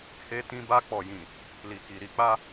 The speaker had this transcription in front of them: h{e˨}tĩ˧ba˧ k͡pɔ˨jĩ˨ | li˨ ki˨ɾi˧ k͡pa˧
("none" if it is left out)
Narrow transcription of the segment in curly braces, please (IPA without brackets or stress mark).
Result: e˧